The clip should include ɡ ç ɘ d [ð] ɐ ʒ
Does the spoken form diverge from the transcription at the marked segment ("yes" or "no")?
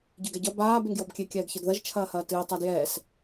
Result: no